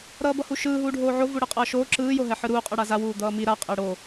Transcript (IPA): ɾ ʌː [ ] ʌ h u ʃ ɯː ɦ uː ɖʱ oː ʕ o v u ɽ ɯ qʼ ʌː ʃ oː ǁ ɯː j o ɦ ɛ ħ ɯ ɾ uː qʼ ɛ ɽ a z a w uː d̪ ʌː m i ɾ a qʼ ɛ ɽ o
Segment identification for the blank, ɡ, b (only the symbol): b